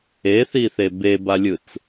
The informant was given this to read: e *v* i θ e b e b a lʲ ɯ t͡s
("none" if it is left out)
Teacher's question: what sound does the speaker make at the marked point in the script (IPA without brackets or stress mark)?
θ